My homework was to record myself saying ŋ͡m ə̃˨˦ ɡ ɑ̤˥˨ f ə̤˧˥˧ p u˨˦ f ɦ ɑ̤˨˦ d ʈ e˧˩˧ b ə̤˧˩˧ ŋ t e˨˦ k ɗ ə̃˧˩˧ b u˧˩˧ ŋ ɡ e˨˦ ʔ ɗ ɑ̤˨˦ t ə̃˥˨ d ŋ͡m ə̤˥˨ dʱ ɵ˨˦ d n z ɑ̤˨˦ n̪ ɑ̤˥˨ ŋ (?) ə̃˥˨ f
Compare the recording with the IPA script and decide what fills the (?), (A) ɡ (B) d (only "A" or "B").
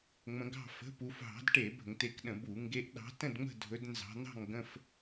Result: A